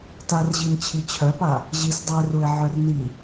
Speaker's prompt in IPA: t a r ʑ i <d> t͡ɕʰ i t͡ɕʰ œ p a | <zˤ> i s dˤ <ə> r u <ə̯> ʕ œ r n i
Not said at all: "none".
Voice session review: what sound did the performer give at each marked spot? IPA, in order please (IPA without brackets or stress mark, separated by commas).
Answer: n, ʑ, œ, ɪ̯